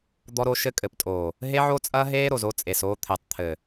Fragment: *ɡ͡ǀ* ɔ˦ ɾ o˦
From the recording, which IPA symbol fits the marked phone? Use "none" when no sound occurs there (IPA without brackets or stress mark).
d̪